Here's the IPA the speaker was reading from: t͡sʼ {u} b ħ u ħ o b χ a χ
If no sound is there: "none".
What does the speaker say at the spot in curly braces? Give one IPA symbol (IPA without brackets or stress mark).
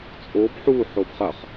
o